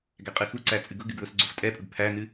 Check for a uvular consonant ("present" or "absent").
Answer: present